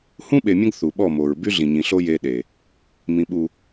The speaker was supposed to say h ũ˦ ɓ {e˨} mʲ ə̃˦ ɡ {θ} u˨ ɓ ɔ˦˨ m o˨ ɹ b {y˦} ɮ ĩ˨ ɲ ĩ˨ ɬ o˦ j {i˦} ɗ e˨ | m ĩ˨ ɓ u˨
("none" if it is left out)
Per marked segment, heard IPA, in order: e˨, θ, y˦, e˦

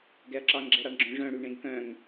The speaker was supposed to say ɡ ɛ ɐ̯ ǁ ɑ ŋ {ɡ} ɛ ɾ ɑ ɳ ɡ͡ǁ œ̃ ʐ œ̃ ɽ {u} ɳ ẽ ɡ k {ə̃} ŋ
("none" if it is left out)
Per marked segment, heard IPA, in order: ɡ͡ǁ, y, œ̃

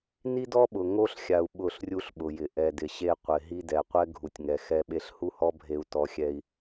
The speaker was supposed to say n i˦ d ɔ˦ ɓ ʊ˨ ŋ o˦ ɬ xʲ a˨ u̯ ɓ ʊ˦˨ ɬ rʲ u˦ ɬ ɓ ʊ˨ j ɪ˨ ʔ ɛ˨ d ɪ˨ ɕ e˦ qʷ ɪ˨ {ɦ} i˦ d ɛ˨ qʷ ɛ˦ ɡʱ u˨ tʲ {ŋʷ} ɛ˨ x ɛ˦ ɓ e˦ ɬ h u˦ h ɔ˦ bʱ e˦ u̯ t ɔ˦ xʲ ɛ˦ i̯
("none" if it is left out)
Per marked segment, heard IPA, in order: ɦ, ŋ

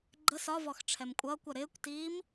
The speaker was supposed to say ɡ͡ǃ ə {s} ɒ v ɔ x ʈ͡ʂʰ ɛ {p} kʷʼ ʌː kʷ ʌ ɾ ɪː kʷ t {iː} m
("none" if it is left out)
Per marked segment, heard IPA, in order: s, m, iː

